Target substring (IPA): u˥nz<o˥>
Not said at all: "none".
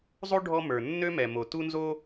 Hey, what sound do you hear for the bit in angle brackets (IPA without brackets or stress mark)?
o˥